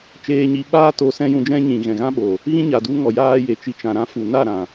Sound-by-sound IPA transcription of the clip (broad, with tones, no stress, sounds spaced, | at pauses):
t͡ʃ eː˧ ɲ i˧ ɓ aː˦ t o˧ s ɛ̃˦ j ũ˧ d͡ʒ ɛ̃˦ ɲ ĩ˨ ɣ ɛ̃˨ ɣ ã˦ ɓ o˨ | ɣ ĩ˦ ɲ a˨ d u˧ ŋ ɔ˨ j aː˦ j e˨ t͡ʃ i˧ t͡ʃ ã˨ ɾ ã˦ f u˨ n a˦˨ ɾ ã˨